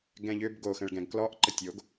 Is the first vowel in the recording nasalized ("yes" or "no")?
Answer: yes